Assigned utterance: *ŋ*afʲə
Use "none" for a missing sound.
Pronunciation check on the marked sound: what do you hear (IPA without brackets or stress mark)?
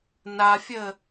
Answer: n